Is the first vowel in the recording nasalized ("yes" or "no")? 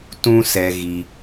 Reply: yes